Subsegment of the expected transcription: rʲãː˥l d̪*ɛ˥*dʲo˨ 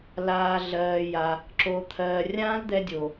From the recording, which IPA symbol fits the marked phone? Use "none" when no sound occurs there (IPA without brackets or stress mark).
ɛ˥